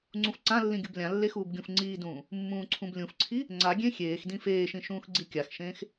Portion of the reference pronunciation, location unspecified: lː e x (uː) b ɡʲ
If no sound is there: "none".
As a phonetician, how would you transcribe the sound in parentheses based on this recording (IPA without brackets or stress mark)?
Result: uː